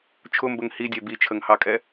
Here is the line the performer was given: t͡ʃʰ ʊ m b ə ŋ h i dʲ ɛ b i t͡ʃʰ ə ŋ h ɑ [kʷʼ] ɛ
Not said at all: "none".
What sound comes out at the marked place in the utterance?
kʼ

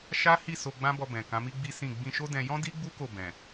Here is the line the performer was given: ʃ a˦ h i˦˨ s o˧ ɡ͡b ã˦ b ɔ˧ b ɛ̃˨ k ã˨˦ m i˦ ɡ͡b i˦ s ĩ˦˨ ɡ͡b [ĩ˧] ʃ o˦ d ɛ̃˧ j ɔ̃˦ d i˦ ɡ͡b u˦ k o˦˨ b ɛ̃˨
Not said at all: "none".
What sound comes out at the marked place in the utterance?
ĩ˧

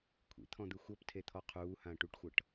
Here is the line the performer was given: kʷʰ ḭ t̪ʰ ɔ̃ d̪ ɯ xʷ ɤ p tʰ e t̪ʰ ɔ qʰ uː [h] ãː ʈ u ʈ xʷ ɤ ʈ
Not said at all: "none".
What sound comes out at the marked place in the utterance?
h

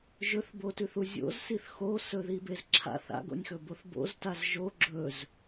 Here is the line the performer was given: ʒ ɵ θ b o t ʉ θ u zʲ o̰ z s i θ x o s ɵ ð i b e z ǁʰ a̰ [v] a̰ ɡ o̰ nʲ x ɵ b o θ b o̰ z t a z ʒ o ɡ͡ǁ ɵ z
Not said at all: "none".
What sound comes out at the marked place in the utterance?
θ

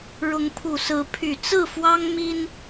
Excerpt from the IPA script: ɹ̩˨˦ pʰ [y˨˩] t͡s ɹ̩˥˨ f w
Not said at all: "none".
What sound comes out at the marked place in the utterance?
y˨˩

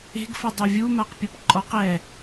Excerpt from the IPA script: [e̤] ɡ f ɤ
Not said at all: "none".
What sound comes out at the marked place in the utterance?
e̤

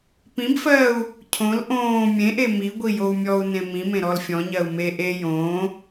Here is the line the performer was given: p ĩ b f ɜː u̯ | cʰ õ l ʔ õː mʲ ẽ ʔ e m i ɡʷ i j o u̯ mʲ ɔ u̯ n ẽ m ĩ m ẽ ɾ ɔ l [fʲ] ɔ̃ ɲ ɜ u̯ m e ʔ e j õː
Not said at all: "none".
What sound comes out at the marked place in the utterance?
fʲ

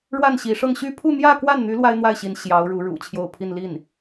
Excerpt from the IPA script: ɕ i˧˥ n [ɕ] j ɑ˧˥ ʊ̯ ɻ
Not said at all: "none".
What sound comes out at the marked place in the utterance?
ɕ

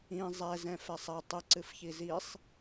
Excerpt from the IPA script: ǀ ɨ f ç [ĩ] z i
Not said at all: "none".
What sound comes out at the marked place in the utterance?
i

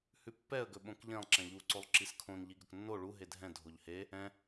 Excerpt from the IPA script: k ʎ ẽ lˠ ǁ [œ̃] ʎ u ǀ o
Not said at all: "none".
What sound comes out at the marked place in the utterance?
ɛ̃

